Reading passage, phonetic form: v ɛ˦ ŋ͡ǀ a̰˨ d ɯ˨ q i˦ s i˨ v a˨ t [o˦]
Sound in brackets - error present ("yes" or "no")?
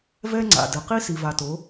yes